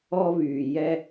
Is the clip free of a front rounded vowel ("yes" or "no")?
no